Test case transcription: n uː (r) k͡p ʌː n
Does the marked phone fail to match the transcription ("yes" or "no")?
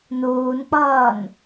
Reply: yes